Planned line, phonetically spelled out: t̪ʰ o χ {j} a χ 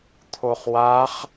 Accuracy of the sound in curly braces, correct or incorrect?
incorrect